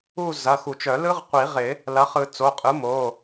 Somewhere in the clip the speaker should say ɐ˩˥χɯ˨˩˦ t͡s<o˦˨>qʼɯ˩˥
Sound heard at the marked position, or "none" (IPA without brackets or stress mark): o˩˧˩